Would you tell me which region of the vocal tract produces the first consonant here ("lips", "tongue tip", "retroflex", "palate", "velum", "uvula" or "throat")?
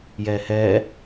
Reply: palate